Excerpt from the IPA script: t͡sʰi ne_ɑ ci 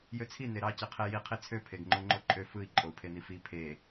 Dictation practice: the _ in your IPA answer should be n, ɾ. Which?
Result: ɾ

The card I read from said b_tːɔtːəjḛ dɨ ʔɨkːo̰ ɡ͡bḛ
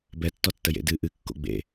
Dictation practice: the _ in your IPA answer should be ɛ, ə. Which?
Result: ɛ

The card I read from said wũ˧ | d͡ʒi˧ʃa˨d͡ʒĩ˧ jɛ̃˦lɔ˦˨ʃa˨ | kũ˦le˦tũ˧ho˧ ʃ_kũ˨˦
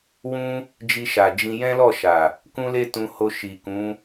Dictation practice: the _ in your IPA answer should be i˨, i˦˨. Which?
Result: i˨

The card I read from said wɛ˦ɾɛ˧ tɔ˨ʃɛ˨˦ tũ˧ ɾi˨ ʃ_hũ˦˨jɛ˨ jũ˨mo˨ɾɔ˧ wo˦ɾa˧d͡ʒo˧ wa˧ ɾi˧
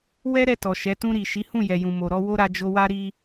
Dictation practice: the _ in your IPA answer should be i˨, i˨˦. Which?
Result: i˨˦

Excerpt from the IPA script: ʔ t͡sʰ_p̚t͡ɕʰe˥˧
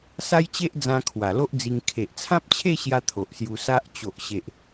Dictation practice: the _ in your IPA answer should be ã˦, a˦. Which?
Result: ã˦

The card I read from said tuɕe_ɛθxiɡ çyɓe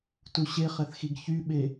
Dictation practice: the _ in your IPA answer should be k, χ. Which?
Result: χ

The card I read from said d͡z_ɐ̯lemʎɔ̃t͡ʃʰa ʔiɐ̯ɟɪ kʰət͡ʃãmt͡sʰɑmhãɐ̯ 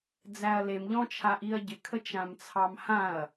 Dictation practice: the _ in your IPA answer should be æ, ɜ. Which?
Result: æ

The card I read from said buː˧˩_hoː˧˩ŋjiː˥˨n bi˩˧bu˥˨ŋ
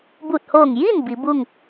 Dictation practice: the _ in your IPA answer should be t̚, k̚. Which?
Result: t̚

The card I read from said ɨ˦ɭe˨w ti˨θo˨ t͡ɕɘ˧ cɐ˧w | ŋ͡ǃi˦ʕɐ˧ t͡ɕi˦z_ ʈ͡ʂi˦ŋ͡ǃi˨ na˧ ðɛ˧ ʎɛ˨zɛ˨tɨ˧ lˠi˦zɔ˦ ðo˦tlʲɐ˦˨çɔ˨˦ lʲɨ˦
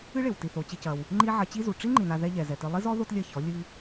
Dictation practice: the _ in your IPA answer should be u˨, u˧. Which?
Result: u˨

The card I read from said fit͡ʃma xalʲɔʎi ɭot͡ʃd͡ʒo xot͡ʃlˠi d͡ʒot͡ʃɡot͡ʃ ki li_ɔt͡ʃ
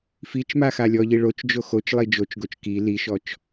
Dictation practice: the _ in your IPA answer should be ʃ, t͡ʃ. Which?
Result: ʃ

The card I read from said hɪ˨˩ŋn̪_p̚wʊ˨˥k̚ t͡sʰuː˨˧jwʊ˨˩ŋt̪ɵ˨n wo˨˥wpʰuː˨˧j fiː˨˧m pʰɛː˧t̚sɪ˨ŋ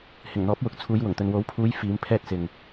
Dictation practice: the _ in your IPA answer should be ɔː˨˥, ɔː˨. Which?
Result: ɔː˨˥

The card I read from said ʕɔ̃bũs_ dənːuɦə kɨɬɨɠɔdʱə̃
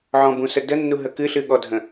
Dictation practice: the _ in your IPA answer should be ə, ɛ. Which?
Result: ə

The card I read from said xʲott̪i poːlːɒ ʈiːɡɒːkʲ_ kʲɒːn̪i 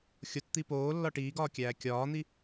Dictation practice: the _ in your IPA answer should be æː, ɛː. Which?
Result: æː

